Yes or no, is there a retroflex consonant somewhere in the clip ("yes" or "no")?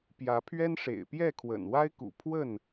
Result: yes